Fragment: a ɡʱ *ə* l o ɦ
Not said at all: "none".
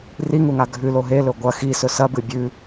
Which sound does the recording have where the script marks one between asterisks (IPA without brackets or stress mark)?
ʉ